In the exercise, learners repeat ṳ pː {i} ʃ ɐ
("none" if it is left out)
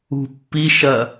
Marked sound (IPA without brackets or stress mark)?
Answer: i